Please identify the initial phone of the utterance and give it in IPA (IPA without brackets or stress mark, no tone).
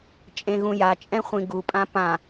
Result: t͡ʃʼ